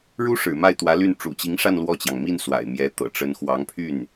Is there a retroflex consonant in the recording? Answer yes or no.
yes